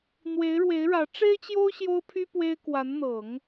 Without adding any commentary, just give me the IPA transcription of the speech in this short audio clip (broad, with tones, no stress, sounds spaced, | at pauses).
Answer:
n̪ w e˧˥ ɪ̯ ɻ w e˧˥ ɪ̯ ɻ ä˧˥ ʈ͡ʂ e˥ ɪ̯ t͡ɕ j o˥ ʊ̯ ɕ j o˥ ʊ̯ pʰ y˥ p w e˥ ɪ̯ k w a˧˥ n n̪ ɤ˨˩˦ ŋ